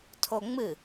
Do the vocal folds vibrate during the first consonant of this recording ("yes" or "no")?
no